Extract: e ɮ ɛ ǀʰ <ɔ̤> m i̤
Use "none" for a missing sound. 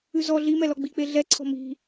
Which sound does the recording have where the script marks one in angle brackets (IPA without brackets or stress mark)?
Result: ɔ̤